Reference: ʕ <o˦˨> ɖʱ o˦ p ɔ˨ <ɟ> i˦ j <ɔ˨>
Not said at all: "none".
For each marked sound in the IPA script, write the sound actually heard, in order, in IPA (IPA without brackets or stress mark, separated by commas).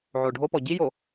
o˨, ɟ, o˨